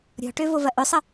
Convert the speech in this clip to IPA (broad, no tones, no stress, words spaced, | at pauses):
ɾʲɔ̤ʈøvovɐ ʔʏsˤə